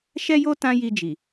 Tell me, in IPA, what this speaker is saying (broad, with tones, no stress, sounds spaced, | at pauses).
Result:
ʃ ɛ˦ j o˦ t ã˦ j i˧ d͡ʒ i˨